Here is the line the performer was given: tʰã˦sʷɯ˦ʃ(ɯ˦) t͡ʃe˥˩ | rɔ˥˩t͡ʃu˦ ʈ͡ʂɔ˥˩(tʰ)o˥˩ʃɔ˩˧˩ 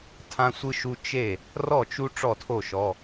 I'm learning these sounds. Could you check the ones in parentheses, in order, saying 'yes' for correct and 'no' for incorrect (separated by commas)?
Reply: no, yes